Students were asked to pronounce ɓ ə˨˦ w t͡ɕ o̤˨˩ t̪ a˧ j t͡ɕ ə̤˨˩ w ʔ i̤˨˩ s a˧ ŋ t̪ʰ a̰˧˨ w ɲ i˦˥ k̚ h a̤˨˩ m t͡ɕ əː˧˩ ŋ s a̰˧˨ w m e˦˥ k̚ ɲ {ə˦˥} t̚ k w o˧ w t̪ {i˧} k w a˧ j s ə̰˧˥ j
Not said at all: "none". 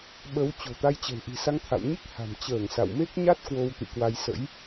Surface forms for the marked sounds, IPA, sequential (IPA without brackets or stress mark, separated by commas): a˦˥, ḭ˧˨